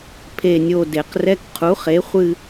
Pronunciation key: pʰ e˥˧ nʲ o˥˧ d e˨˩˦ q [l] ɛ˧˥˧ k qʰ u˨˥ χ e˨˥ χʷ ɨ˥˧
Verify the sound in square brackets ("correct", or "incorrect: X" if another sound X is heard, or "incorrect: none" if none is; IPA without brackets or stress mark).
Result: incorrect: r